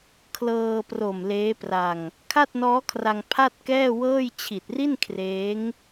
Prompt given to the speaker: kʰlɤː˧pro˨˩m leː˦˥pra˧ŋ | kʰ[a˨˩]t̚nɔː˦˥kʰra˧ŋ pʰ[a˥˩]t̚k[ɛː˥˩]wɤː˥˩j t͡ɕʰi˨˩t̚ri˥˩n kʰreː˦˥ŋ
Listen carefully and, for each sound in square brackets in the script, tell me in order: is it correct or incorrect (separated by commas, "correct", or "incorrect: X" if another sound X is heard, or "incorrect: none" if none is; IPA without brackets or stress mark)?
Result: incorrect: a˥˩, correct, correct